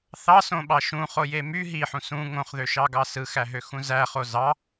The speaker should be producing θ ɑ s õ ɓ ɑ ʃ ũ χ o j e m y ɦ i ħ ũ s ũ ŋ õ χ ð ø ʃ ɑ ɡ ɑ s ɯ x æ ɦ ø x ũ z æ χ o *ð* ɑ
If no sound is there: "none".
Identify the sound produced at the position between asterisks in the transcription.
z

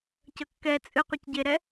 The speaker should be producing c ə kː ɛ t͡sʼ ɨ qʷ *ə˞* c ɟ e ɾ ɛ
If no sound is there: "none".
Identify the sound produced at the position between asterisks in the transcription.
ə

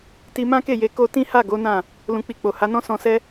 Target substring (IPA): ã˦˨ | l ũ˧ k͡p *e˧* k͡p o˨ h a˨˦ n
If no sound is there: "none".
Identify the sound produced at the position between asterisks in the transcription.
i˧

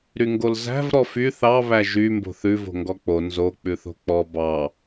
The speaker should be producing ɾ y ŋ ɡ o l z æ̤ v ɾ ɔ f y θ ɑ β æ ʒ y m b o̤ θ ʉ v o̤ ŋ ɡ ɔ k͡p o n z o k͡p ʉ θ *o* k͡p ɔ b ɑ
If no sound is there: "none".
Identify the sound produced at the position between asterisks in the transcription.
o̤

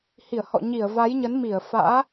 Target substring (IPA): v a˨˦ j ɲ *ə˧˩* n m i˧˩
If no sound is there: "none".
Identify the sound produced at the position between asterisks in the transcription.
ə˨˦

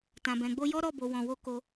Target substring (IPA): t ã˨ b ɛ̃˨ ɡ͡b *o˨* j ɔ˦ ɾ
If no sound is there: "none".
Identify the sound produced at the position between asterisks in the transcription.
o˧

